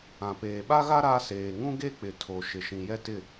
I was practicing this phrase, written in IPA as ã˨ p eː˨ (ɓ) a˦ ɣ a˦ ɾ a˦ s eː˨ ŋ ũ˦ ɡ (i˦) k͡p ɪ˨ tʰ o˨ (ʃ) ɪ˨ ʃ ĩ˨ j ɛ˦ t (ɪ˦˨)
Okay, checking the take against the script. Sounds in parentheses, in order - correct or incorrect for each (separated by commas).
correct, incorrect, correct, correct